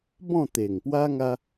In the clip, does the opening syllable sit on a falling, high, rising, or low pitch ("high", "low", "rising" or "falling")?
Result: falling